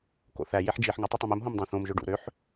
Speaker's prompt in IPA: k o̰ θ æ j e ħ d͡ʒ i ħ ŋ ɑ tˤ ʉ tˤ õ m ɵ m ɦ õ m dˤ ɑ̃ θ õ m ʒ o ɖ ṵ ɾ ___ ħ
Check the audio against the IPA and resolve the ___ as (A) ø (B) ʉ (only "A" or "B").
A